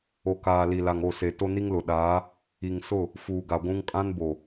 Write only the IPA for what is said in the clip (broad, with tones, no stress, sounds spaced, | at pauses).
o˨ k aː˨ l i˨ l a˨ ŋ o˦˨ s e˨ t o˦ n i˦ ŋ l ʊ˨ ɗ aː˨˦ | i˨ ŋ s ʊ˦˨ | f uː˨ ɡ a˨ ɡʷ ũ˦ ŋ kʼ ã˦ n b o˨